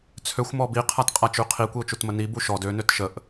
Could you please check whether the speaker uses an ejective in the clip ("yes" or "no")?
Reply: yes